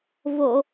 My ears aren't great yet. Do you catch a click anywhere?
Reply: no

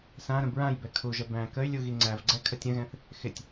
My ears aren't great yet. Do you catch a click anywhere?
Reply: yes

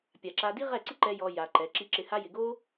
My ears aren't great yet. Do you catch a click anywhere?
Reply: yes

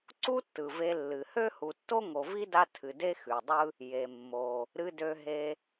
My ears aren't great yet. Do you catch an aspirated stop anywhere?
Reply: yes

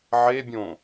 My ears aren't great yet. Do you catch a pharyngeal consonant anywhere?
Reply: yes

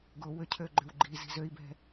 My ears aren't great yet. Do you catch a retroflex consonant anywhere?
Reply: no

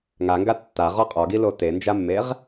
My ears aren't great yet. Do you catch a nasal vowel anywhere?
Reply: no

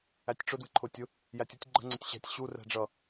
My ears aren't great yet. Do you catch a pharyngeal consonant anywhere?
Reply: no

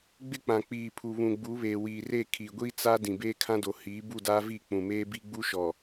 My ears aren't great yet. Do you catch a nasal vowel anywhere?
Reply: yes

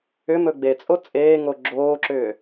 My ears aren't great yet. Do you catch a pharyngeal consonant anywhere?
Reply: no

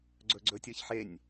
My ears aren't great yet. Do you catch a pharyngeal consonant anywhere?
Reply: yes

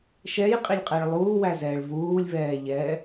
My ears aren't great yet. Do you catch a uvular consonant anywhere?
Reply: yes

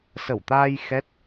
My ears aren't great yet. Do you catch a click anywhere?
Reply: no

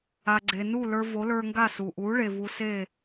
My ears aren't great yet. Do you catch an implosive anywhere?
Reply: no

